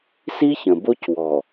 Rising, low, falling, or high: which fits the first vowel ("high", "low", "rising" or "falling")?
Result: high